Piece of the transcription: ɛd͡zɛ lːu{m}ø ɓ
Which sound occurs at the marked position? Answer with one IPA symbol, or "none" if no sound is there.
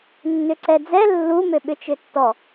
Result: m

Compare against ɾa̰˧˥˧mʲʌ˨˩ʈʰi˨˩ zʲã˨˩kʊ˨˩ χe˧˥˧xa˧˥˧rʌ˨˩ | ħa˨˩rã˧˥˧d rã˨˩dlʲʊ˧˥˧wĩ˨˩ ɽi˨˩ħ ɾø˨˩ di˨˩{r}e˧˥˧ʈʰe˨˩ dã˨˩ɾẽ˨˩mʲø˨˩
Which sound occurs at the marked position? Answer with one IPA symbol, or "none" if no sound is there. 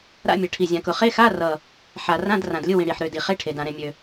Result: χ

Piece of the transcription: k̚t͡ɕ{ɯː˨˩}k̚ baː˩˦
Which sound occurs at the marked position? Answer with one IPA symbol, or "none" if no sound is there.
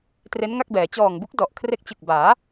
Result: ɯ˨˩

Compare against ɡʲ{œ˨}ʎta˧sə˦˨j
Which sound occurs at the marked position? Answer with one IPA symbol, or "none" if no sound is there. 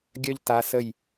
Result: œ˦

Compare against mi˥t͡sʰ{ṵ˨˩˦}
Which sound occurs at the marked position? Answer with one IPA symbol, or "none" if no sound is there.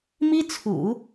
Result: ṵ˨˩˦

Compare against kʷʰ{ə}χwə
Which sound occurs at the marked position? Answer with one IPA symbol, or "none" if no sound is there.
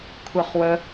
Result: ə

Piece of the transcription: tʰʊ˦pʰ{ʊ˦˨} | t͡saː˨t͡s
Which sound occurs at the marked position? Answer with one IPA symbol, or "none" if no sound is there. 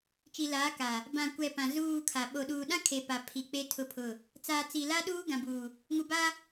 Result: ʊ˦˨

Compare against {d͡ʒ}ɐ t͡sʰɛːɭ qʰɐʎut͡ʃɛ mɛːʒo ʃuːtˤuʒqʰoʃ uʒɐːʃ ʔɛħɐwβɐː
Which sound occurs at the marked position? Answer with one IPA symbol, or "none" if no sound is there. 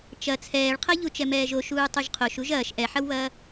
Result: t͡ʃ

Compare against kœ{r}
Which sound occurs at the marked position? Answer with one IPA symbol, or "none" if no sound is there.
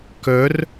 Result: r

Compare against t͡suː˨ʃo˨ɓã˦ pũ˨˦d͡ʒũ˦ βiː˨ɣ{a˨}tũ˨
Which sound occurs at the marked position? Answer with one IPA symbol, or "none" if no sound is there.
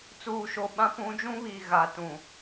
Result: a˨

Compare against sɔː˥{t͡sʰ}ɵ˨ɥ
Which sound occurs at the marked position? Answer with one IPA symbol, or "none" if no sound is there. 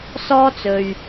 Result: t͡s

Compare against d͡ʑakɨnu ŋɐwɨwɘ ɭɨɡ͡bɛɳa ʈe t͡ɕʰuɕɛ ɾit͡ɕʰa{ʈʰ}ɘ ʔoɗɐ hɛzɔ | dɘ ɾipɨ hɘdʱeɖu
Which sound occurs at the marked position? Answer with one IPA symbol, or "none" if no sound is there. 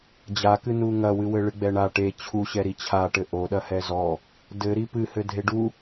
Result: ʈ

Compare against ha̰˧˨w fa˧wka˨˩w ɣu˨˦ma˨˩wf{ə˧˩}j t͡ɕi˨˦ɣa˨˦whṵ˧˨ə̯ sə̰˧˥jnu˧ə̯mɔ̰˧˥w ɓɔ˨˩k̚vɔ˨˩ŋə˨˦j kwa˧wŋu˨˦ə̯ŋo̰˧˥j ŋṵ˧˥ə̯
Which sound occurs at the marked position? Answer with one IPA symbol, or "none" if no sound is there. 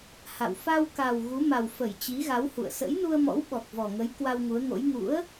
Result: ə˧˩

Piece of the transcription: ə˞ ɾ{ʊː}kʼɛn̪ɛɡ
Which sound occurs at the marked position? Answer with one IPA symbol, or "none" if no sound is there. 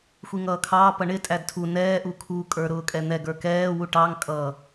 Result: ʊː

